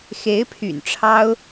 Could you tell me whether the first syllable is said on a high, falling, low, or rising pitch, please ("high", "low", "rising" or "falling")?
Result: rising